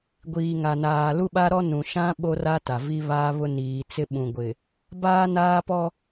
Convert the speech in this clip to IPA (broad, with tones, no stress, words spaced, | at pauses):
ɡʷiː˨ŋa˨naː˨ lu˦ɓa˦ɾɔ˦ nũ˨ʃã˦ ɓo˦ra˦ta˨ vi˦βaː˦βʊ˦ niː˨t͡sɪ˦ ɓũ˨ ɡʷɪ˨ | baː˦naː˦pɔ˦